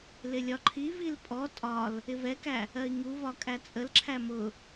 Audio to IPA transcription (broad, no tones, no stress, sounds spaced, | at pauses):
l ɪ lʲ ɒ ǃʰ i v i l pʼ ɔ tʼ ɒ l | ɪ v ɛ k æ | ɜ i̯ ŋ u v ɒ kʼ æ t͡sʼ ə l ǁʰ æ m ʊ